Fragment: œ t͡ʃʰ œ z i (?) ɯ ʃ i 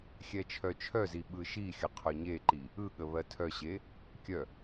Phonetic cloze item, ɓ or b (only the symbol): ɓ